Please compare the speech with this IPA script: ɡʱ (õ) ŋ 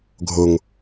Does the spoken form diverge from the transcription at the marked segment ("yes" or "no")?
yes